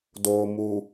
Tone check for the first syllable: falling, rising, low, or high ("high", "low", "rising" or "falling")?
low